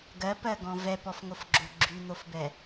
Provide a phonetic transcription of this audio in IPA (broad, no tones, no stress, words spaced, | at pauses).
ɡɜpɜɡɔ̃ vɛpɔfŋofɡ͡ǁo ɡ͡ǁyn̪ofbɛ